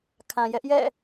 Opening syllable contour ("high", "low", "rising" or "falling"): low